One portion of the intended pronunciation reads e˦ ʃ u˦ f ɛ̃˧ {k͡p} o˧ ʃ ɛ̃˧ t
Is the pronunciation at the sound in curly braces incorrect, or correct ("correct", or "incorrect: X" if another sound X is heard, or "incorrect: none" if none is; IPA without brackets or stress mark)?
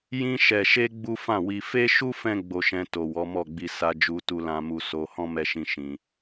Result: incorrect: ɡ͡b